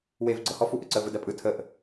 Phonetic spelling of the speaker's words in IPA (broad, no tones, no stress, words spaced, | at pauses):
wev ɡ͡ǀɤhɔ fuʔəǀə vɯdɜpʼɯ tʰəʔ